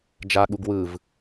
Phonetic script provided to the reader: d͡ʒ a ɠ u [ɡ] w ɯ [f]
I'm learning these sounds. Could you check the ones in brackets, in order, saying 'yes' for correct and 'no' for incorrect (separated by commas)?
yes, no